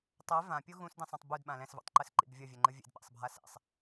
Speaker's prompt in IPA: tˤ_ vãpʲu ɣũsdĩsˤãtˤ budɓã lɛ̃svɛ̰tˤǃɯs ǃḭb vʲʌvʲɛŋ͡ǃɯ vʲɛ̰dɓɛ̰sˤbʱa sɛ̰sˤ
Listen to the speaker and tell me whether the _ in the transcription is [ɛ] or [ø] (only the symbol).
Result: ɛ